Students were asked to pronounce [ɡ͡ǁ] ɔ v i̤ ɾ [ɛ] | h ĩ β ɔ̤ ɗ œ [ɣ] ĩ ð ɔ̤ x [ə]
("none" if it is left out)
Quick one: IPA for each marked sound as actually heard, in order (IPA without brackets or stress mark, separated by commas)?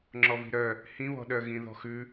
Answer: ŋ͡ǁ, œ, ɣ, ʉ